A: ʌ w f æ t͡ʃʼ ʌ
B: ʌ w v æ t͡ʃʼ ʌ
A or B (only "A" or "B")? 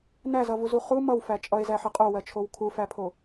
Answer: A